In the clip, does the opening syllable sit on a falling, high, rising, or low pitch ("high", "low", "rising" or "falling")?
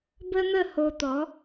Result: high